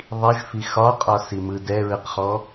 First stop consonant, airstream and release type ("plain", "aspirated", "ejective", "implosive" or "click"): ejective